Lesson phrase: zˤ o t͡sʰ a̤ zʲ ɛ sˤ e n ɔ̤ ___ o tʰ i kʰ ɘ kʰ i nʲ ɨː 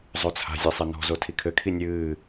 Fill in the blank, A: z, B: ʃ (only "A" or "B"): A